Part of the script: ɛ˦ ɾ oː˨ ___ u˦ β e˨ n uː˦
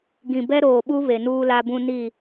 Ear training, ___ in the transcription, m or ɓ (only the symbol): ɓ